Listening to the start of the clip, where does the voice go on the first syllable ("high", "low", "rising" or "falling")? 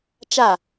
falling